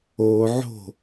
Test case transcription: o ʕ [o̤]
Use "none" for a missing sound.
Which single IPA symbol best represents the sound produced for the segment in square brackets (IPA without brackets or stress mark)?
o̤